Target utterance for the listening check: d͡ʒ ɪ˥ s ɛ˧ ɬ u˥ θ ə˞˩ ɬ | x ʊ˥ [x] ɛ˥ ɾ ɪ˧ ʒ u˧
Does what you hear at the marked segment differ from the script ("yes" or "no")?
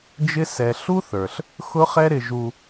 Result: yes